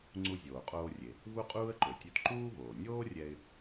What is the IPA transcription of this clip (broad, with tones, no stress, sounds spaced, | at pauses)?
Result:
ŋ͡ǀ u˧ zʲ oː˩ qʼ oː˧ rʲ e˩ | v u˥ qʼ uː˥ ə̯ ǃ ø˩ tʲ ø˧ t ǃ uː˥ v oː˩ nʲ oː˥ rʲ ɛ˧ ɪ̯